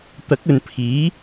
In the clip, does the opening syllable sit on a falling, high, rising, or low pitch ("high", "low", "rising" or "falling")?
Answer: rising